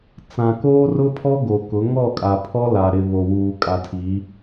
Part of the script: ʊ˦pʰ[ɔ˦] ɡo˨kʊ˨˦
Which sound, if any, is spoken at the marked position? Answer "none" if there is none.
ɔ˦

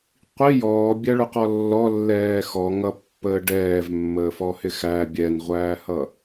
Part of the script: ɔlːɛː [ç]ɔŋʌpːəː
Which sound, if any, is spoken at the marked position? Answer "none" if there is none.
x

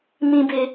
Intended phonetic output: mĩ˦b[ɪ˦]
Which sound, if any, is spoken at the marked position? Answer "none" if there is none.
ɪ˦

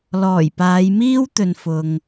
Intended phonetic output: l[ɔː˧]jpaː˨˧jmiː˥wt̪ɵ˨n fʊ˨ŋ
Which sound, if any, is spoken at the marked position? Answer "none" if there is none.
ɔː˨˩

